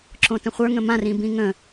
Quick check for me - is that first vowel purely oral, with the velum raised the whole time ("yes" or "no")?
no